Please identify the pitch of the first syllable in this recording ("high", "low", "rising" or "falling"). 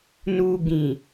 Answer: low